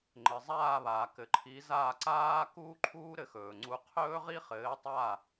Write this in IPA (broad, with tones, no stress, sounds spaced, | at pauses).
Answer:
ŋ͡ǃ ɘ˩ zˤ aː˥˩ β aː˩ k ɘ˩ ǃʰ i˩˥ z aː˥˩ ǀ aː˥ k uː˥ ǃʰ uː˥ ɾ ɘ˧ x ɵː˩ ŋ͡ǀ u˧ qʰ ɵː˥ ʁ i˥ χ ɘː˩˥ tˤ a˥˩